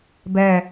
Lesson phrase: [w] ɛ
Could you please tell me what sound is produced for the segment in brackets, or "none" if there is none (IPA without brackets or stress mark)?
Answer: b